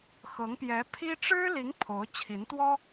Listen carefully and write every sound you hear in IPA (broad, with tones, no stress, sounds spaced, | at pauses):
x ɤ˧˥ ŋ p j ɛ˧˥ pʰ i˥ ʈ͡ʂ ɻ̩˥ l i˧˥ ŋ pʰ o˧˥ ʊ̯ t͡ɕʰ i˧˥ n t̪ w ɔ˥